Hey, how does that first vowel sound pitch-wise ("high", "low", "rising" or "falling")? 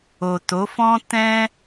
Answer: low